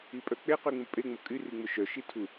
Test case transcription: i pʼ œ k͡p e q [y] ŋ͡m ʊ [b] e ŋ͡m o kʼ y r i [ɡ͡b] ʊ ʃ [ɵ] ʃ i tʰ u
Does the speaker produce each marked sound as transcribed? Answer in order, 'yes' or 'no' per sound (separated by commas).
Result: yes, no, no, no